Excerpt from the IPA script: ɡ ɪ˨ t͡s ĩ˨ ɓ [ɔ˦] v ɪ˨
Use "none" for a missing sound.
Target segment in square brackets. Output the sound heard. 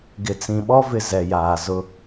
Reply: ɔ˦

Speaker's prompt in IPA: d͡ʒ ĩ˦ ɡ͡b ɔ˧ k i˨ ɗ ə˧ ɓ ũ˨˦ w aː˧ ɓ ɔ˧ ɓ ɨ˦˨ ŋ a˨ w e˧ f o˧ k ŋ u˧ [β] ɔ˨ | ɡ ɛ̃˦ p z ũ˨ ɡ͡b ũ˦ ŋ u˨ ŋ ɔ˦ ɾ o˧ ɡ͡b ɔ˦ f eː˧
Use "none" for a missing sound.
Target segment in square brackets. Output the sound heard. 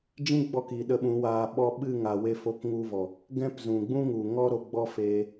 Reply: v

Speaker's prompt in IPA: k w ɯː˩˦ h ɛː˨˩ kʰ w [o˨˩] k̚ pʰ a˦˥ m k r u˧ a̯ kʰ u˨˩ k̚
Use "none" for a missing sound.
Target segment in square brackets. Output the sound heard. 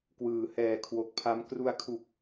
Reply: o˨˩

